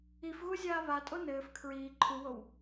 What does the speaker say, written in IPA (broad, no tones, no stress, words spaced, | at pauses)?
ifɣuzʲaː βatʼo nɘːf kʰɹiː ǃʰuwow